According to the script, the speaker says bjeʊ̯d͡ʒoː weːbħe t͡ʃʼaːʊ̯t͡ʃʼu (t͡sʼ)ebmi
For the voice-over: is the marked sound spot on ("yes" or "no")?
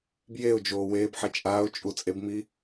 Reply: yes